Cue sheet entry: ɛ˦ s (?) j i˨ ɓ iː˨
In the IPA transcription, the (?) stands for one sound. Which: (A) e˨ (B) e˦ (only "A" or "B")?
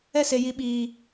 A